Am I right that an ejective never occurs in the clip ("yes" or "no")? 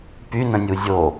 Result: yes